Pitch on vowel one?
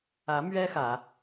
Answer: rising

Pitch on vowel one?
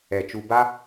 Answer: low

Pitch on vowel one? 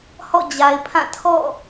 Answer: falling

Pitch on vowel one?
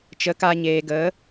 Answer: rising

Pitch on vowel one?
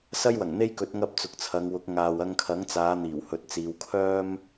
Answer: high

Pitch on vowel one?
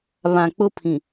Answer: low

